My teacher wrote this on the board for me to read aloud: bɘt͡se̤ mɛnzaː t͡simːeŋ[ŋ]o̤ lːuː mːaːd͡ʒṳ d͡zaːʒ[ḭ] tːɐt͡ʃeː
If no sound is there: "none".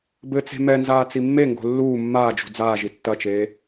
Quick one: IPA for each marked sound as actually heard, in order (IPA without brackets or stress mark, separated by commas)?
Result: ɡ, i